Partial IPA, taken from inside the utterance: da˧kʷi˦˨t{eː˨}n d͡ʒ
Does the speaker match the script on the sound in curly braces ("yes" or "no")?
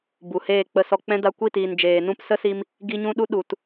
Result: no